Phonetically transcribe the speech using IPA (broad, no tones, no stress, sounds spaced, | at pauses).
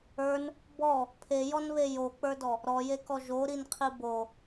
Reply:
ə˞ n | b ɔ | pʰ e j ɔ n β e j o k͡p ə˞ d ɔ | ɾ ɔ j e k ɔ ʒ o ɾ i n qʰ i b o